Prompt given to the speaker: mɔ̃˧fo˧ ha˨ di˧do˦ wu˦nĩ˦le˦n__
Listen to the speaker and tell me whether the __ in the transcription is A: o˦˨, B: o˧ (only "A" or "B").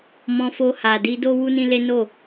A